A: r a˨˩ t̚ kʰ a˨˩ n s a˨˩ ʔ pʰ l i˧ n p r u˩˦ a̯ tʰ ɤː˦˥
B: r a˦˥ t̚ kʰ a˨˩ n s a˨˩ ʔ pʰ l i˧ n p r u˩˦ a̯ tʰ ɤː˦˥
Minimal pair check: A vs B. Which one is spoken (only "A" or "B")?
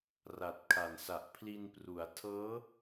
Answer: A